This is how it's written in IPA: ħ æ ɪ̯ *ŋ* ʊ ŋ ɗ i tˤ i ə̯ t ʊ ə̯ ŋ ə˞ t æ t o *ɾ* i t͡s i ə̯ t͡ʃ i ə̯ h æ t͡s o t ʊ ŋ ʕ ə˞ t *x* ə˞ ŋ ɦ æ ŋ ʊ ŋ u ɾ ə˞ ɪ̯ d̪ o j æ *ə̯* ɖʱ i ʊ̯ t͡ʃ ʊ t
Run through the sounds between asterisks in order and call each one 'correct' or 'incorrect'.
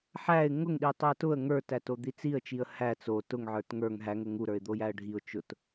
correct, incorrect: d̪, incorrect: ŋ, correct

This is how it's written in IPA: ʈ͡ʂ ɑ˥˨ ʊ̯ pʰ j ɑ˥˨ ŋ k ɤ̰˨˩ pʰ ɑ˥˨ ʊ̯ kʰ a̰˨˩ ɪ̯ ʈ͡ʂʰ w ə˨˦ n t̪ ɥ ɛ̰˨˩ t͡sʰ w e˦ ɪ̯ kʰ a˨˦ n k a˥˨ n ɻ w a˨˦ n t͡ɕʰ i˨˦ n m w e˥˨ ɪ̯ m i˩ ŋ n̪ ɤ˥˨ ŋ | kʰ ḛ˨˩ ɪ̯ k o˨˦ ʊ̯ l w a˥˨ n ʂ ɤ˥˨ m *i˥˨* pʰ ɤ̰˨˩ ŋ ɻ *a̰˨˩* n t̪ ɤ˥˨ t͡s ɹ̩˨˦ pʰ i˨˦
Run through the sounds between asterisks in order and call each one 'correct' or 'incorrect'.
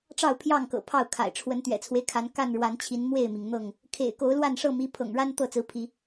incorrect: i˨˦, incorrect: a˦

